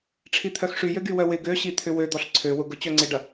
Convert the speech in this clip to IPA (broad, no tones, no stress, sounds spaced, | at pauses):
ʈ͡ʂʰ i t̪ʰ œ x ʂ y j ø ɡ y w œ w ɪ ɡ ø ɕ i t̪ʰ ʏ w ø d̪ ɔ ɬ ǀʰ ø w ʊ ɡ ʊ t͡ɕ œ ŋ͡ǀ ɪ ɖ ɐ